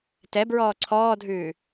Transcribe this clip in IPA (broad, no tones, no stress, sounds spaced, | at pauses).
t ɛ b ɹ ɔː ǀʰ ɔː dʱ ʉː